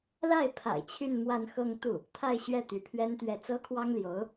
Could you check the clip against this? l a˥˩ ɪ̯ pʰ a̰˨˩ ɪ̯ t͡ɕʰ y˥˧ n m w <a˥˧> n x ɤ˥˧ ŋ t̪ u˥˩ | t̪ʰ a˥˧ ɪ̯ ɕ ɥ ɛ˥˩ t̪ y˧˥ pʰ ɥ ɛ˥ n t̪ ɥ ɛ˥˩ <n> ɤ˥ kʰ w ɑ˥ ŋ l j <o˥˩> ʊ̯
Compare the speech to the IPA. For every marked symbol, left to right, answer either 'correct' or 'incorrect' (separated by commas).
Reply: correct, incorrect, incorrect